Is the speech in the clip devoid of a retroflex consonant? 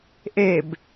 yes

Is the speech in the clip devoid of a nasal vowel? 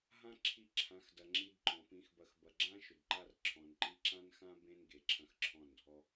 no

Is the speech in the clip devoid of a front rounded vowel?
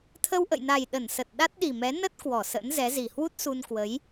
yes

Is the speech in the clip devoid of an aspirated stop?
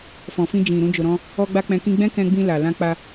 yes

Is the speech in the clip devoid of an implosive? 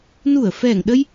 no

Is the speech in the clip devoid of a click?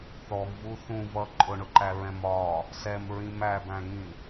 no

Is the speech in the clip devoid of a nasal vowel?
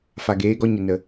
yes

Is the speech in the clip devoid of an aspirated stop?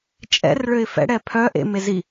no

